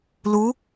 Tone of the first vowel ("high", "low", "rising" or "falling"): rising